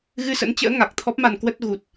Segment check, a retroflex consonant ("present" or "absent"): absent